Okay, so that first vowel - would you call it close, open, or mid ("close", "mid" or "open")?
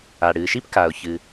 open